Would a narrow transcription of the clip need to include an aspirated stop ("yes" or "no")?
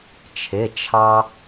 yes